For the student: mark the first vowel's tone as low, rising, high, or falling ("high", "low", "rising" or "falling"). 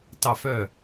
falling